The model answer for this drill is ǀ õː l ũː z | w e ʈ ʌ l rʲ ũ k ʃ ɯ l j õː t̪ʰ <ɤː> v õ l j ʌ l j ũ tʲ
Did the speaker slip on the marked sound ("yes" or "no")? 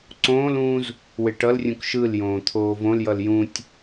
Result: yes